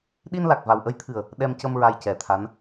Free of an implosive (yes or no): no